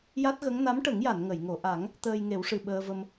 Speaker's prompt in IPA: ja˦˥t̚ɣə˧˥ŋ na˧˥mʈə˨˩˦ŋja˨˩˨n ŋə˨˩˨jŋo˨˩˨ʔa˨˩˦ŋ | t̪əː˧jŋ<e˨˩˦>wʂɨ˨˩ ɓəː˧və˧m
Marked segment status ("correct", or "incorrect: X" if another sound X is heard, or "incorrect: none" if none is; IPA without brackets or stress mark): correct